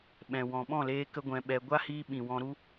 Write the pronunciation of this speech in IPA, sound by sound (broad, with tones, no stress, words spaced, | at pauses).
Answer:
ɓɛ̃˨wɔ̃˨ɓɔ̃˦˨leː˧ kə˦ɡʷɛ̃˧ɓɛ˧ ɡʷa˦hiː˧ɓĩ˨ wɔ̃˧ɾu˦